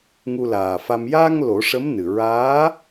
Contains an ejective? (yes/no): no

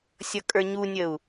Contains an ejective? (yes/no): yes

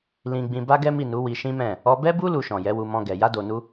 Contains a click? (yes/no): no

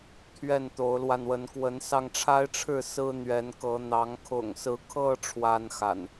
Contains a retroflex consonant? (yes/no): yes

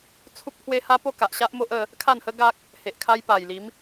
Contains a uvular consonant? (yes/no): no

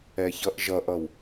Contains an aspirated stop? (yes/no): no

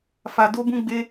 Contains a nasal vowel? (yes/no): yes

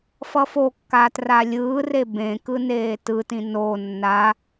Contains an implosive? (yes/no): no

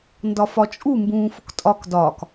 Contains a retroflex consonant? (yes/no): no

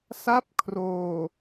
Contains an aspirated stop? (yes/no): yes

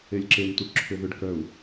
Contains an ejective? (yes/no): no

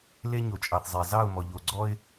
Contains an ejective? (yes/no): yes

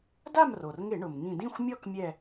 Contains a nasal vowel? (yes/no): yes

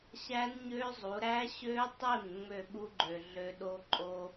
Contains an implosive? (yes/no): yes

